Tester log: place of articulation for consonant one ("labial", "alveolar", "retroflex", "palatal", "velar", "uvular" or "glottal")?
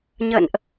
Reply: palatal